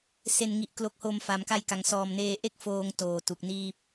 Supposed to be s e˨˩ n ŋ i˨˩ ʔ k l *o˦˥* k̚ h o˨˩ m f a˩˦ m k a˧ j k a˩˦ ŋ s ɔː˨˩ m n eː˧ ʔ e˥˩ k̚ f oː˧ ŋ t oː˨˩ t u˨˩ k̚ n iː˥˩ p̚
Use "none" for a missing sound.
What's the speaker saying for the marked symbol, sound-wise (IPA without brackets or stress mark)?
o˨˩